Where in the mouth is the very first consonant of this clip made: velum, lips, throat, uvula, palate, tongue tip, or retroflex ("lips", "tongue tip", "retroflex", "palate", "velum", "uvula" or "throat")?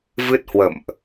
lips